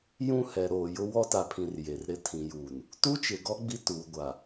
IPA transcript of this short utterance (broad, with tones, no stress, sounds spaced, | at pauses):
j ũ˦ h ɛ˨ ɾ oː˨ j ʊ˦ w ɔ˦ t a˨ pʰ ĩ˨ r j e˨ r ɾ ɪ˦˨ tʰ ĩ˨ j uː˨ n | t u˦ t͡ʃ ɪ˨ ɡ ɔ˦ ɡ͡b i˦ t uː˨ ɡʷ a˨